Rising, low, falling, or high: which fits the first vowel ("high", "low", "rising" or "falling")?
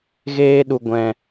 high